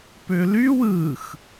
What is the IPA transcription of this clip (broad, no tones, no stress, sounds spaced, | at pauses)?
p ø l y w ɯ x